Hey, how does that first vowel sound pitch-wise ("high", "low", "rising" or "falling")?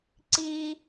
high